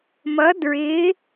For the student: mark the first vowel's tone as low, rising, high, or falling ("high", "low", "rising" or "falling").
rising